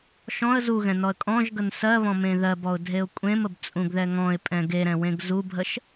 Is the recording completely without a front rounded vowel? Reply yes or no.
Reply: yes